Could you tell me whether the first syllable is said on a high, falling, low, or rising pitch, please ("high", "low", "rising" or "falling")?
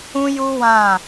high